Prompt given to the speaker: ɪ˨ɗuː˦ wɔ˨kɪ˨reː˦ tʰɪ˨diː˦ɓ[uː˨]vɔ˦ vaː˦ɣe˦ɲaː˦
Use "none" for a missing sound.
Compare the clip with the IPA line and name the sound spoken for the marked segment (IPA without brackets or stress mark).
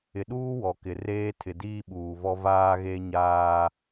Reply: uː˨